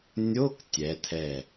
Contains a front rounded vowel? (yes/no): no